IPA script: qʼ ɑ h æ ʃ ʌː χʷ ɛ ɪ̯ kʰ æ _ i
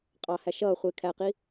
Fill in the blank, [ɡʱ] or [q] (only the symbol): q